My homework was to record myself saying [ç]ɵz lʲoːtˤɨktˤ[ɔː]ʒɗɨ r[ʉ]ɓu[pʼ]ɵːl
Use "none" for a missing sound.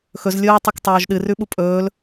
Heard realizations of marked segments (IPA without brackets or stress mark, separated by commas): x, oː, ʉ, pʼ